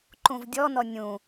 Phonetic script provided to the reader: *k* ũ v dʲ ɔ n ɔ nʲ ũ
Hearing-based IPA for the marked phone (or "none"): ǃ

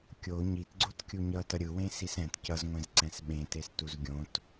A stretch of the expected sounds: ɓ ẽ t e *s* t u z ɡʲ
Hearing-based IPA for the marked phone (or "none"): s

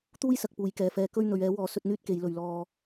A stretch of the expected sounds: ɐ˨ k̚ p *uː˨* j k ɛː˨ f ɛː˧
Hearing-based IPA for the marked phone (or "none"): uː˨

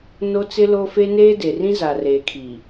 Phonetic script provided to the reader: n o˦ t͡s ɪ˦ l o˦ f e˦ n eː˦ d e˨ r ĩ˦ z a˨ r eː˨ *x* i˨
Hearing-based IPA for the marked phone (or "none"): kʰ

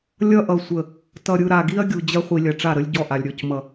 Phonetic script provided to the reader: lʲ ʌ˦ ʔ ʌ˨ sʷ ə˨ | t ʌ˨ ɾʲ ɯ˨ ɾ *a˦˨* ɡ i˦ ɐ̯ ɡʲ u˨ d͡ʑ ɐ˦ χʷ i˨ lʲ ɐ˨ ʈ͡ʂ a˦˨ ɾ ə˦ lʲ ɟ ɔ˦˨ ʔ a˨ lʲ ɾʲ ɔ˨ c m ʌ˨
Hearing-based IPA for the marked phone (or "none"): a˨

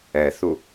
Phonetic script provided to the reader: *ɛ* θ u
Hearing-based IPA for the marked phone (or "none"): ɛ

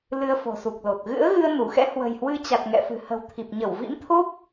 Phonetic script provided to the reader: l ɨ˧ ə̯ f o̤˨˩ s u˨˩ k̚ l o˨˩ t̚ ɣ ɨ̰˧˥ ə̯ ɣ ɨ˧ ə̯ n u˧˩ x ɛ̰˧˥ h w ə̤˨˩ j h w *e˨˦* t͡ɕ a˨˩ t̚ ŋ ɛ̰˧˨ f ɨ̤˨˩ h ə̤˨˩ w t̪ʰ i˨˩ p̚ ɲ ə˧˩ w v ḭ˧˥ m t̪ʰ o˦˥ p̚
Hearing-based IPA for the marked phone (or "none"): ɨ˨˦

